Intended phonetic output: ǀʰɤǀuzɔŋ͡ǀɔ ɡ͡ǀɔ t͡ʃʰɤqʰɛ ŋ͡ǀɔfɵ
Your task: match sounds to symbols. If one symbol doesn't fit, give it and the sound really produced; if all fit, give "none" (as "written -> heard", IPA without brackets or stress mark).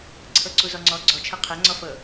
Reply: ɵ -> ɤ